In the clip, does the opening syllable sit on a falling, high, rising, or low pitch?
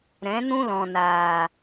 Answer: rising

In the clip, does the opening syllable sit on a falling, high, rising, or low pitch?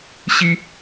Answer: high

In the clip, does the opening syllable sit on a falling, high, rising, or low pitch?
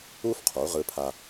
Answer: high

